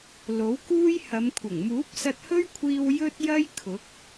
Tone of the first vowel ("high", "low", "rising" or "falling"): rising